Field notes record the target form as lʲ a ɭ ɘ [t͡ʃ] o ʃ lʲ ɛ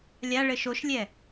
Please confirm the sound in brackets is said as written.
no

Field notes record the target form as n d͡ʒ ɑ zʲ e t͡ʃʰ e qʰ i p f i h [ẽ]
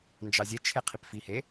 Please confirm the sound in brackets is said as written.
no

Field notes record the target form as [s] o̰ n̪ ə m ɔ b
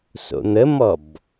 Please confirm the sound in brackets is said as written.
yes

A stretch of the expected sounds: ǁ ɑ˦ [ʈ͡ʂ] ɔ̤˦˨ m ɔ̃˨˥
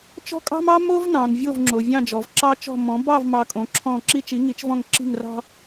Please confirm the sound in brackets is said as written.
no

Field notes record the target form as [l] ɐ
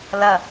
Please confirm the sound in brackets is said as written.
yes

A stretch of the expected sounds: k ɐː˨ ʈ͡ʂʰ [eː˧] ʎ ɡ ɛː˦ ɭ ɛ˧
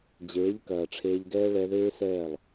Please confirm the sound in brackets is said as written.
yes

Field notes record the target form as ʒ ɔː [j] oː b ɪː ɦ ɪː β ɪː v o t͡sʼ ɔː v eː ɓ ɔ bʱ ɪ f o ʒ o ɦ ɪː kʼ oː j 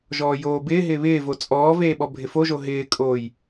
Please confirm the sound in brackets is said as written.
yes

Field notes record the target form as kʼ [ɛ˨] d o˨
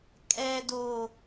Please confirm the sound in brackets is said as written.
yes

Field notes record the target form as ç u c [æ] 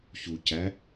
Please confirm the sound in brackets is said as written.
yes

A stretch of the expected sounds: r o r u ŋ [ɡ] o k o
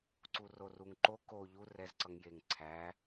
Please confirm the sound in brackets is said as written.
no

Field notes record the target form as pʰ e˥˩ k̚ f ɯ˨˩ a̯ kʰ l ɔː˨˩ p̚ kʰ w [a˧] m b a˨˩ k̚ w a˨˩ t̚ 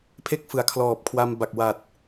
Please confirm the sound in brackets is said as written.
yes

